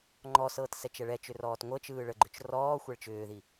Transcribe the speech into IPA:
ŋ͡ǃ ɔ s ɤː t s ɛ t͡ʃ ɛ ɭ ɛ t͡ʃ ʏ r ɔː t ŋʷ ɤ t͡ʃ ɯː ɭ ə ɡ͡ǃ ʏ t͡ʃ r ɔː xʷ ɛ ɭ t͡ʃ ʏː ð i

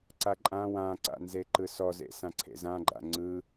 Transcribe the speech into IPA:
ǀ a ǃʼ ã w ã ǀ a̰ n z e ǃ ɯ s ɔ z ḛ s ã ǀʰ ḛ z ã ɡ͡ǃ a̰ ŋ͡ǀ ɯ

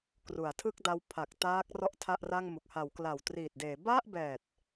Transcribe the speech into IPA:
k r u˩˦ a̯ tʰ ɯ˥˩ k̚ d a˧ w pʰ a˨˩ k̚ t aː˦˥ k̚ r ɔ˥˩ ʔ tʰ a˥˩ ʔ r a˥˩ ŋ m u˨˩ k̚ h a˩˦ w k l a˨˩ w t r iː˨˩ t̚ d eː˩˦ b a˥˩ ʔ b ɛː˨˩ t̚

